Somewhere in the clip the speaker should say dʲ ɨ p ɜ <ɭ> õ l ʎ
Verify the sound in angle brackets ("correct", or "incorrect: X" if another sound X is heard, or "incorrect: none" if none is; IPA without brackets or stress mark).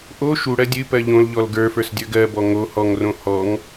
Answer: incorrect: ʎ